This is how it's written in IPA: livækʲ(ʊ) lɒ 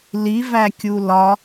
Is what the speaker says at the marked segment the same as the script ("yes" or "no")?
no